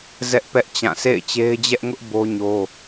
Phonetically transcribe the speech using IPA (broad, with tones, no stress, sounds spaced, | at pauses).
z ɛ˦ ʔ p ɛ˦ ʔ t͡ɕ ã˦˨ s ḛ˦˨ ɪ̯ t͡ɕ e˦ ɪ̯ d͡ʑ ɛ˦ ʔ ŋ ʊ˦ ʔ b o˦ ɲ o˦